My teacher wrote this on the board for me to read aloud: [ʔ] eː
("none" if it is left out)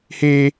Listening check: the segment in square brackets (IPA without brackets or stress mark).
h